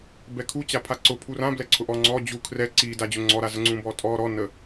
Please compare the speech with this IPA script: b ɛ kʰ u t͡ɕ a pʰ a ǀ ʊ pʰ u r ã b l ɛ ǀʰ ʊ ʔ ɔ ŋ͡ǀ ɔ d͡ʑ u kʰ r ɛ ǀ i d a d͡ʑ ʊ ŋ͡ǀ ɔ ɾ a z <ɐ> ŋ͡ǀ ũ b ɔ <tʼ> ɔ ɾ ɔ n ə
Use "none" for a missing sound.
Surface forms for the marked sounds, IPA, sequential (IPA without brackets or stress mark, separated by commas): ə, tʼ